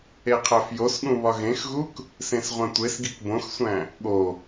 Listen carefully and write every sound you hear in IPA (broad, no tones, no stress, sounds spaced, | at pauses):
e qʰ æ f j o s ɠ ũ β ɒ ɣ ẽ x ɣ u k | s ẽ s ʁʷ æ̃ tʷ e s ɡ i k b õ x sʷ æ̃ | ɠ o